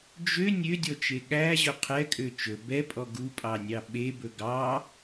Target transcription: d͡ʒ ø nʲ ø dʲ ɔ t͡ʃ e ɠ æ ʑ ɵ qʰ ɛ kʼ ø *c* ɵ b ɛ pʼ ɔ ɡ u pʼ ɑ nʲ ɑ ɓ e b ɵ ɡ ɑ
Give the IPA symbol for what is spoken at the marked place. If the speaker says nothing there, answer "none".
t͡ʃ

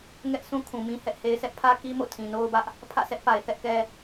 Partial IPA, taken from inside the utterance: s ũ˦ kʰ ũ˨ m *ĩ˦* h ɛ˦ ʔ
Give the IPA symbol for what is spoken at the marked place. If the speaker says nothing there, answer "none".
ĩ˦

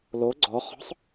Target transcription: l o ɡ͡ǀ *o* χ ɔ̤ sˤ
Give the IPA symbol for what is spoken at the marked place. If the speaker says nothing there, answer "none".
ɔ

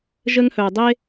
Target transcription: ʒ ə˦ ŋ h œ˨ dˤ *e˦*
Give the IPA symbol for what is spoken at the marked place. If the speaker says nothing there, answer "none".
e˦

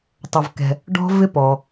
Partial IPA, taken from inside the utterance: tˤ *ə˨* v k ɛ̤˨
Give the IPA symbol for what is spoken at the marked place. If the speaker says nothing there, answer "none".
ə˨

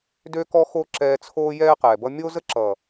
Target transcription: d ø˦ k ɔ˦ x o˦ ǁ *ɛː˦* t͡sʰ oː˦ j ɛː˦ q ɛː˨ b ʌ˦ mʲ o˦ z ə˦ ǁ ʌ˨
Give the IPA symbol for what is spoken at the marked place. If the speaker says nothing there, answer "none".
ɛː˧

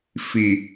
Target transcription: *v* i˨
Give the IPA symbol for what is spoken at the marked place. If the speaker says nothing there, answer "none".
f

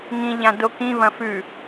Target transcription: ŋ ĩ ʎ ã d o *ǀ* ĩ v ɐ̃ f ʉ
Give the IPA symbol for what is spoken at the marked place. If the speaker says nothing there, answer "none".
k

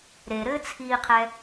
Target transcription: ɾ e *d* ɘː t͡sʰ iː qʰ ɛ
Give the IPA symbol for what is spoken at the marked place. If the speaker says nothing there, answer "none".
ɾ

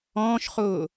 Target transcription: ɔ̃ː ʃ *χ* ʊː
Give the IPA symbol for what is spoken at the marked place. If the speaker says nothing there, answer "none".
χ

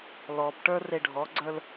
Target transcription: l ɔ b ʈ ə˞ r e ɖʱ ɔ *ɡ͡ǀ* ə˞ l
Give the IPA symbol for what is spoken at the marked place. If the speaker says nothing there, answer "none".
ɡ͡ǀ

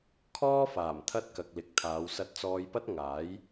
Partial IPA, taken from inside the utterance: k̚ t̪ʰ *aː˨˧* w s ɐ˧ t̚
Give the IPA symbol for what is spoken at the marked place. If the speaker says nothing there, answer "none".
aː˨˧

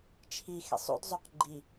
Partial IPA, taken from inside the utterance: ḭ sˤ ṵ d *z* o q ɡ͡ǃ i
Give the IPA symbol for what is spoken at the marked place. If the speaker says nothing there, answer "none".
zˤ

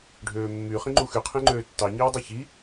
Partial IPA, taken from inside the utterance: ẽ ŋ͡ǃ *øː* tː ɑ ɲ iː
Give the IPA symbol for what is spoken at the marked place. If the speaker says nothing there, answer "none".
øː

